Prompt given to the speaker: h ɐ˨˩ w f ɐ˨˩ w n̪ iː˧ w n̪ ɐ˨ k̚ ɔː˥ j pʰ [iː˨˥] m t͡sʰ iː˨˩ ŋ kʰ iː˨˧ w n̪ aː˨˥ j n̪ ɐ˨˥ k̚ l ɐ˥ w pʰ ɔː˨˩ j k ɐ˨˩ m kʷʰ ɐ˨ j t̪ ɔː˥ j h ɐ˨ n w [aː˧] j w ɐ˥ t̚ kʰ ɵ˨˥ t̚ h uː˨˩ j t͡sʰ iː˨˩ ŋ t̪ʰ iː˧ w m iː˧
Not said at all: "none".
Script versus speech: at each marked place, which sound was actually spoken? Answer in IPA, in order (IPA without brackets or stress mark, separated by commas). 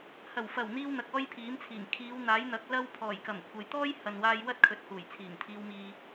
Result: iː˨˥, aː˧